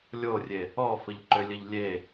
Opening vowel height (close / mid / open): mid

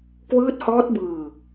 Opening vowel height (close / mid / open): close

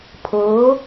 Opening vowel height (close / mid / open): mid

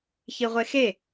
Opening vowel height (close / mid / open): close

